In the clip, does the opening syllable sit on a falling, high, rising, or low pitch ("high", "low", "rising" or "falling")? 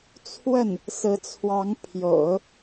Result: falling